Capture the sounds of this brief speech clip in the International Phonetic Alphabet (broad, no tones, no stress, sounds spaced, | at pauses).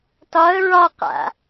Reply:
t ɒ ə̯ ɹ ɒ q a̰